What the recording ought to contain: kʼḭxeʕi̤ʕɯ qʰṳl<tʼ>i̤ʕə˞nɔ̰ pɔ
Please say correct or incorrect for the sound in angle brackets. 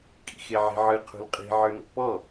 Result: incorrect